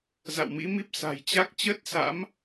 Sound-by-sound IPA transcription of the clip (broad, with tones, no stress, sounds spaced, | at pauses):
z a̰˧˨ w m ḭ˧˥ m i˦˥ p̚ s a̤˨˩ j t͡ɕ a˦˥ k̚ t͡ɕ ə˦˥ t̚ s a̰˧˥ m